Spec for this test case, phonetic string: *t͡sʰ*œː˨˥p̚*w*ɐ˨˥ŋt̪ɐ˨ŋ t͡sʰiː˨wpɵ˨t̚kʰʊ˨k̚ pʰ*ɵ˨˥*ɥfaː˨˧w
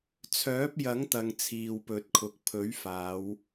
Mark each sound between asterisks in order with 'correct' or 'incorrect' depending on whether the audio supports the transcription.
correct, incorrect, correct

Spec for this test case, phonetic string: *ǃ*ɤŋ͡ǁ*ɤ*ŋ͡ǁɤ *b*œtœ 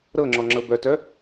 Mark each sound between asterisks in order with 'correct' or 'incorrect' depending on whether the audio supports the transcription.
incorrect, incorrect, correct

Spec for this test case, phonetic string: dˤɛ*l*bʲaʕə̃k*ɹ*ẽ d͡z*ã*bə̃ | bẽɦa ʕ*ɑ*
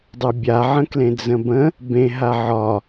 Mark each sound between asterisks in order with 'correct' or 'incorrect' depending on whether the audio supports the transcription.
incorrect, incorrect, incorrect, incorrect

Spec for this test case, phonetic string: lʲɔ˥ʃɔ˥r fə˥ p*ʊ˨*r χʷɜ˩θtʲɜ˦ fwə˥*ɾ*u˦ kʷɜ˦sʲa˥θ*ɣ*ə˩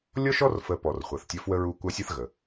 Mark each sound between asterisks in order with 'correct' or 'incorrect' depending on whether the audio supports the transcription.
incorrect, incorrect, correct

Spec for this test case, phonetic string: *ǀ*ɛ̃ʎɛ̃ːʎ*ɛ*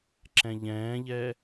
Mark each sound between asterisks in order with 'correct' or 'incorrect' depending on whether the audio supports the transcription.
incorrect, correct

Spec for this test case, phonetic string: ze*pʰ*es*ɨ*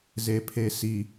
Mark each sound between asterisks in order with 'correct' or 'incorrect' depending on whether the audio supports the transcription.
correct, incorrect

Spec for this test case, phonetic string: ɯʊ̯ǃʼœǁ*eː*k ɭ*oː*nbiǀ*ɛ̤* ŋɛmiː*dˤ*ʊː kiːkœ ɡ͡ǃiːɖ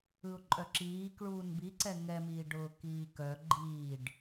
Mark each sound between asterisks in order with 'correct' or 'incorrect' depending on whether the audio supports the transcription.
incorrect, incorrect, incorrect, incorrect

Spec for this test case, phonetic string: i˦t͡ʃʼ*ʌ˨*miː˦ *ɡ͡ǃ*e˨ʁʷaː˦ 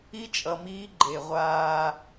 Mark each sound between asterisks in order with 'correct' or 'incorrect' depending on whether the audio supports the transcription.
correct, correct

